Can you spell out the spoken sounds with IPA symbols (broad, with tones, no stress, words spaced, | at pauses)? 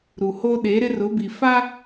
ɾu˨ho˦ ɗe˨˦ɾɪ˦rʊ˨˦bi˨ fa˦